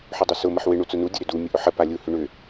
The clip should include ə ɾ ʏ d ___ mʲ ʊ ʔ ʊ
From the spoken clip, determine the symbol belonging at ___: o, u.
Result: u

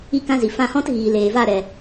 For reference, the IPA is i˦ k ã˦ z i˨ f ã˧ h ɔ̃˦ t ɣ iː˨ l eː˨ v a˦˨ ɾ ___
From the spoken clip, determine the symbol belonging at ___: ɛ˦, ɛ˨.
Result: ɛ˨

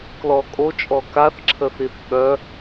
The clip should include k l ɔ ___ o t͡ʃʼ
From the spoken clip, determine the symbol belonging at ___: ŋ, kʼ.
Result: kʼ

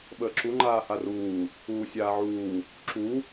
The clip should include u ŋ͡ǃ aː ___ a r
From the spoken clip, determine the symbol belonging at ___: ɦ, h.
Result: h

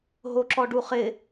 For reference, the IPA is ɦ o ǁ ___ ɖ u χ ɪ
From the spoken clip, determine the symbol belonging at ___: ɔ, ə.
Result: ɔ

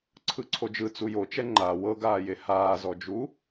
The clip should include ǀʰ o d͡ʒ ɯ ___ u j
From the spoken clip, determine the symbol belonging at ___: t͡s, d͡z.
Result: t͡s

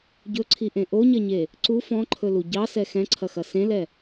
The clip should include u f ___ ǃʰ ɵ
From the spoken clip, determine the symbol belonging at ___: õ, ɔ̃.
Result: ɔ̃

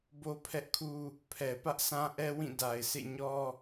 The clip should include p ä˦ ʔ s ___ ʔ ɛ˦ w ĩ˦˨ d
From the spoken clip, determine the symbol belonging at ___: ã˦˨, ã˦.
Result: ã˦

